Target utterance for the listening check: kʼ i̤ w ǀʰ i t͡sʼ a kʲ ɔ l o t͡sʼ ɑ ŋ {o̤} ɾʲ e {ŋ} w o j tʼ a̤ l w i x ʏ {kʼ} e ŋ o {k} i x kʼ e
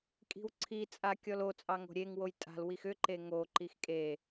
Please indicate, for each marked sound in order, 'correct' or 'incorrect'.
correct, correct, incorrect: ǃ, incorrect: ǃ

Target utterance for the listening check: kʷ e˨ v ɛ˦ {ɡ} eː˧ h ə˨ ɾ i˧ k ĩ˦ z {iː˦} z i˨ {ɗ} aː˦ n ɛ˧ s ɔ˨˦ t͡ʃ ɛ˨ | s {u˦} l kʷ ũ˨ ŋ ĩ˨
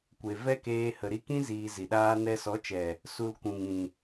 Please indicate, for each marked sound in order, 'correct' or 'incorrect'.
incorrect: k, incorrect: iː˧, correct, incorrect: u˧

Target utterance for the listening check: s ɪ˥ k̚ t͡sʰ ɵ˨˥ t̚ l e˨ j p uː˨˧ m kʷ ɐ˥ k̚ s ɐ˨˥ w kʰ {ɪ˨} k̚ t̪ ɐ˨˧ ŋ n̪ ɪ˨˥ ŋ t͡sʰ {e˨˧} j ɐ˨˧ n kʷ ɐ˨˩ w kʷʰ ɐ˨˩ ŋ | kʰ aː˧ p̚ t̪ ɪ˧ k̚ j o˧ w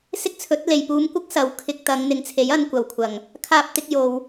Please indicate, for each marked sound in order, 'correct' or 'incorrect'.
incorrect: ɪ˧, incorrect: e˨˥

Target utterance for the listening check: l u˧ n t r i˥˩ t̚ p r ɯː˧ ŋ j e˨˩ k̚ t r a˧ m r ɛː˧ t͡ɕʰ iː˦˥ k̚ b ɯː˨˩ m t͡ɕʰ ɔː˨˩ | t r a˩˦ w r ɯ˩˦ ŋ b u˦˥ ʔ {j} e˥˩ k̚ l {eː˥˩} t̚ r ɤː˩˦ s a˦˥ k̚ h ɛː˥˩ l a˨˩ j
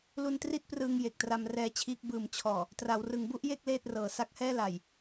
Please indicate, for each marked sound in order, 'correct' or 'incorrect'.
correct, correct

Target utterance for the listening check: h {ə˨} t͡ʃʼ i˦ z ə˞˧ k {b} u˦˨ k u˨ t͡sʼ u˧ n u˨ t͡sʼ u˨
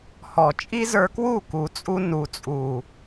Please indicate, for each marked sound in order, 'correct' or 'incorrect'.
incorrect: ɔ˨, incorrect: w

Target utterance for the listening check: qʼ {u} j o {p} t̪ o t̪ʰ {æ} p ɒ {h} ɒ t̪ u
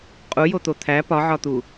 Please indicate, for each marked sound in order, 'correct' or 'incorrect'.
correct, incorrect: none, correct, incorrect: ʕ

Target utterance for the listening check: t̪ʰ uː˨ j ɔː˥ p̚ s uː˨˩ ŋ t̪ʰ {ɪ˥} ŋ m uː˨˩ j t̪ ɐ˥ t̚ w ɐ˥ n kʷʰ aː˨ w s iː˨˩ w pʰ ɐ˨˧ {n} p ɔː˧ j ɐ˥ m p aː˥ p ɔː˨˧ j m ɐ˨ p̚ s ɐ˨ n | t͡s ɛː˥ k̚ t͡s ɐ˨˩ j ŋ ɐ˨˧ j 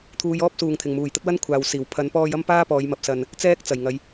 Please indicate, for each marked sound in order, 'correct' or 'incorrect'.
incorrect: ɪ˨˩, correct

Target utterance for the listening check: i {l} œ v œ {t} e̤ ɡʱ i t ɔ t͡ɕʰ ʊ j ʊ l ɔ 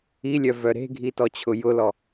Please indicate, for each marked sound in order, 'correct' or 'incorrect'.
incorrect: lʲ, incorrect: ɾ

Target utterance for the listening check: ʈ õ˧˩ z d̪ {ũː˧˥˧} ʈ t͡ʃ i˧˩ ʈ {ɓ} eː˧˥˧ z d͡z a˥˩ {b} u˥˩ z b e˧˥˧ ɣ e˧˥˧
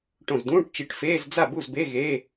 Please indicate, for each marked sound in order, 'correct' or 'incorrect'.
correct, incorrect: f, correct

